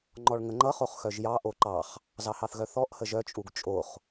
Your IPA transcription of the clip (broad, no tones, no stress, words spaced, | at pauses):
ŋ͡ǃɔɭŋəŋ͡ǃʌ χoχxœʒjɑ ʔoǃɑχ | zɑhɑθɣœθɔʔ həʒœ t͡ʃʼuɡt͡ʃʼoχ